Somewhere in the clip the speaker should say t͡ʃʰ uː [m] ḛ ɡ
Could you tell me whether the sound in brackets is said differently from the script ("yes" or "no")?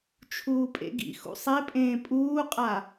yes